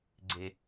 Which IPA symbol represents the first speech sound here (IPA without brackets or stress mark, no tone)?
ɡ͡ǀ